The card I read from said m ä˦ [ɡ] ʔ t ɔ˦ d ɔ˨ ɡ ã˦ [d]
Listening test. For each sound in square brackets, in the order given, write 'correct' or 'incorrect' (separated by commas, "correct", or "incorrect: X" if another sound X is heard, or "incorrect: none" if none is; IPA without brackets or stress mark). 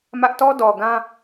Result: incorrect: none, incorrect: none